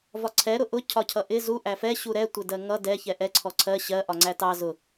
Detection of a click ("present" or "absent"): present